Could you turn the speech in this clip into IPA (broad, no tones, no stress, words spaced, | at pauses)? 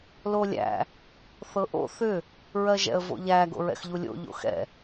lolʲæ̰ | θɤʔo̰ θʏ | ɹɜʒɛ̰ə̯vo̰ʎæ ɡo̰ɹɛ̰xʎulʲo̰ ʎo̰xɛ̰